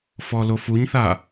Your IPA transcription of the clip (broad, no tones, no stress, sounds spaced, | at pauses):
f ɔ l o f u ɲ θ a